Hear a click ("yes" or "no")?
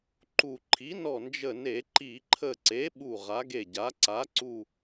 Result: yes